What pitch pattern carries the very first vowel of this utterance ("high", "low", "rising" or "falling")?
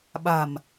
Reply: low